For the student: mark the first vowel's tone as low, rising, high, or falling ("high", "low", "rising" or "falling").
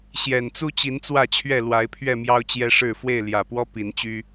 low